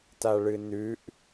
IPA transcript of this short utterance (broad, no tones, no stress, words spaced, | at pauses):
taɭɨnʉʔ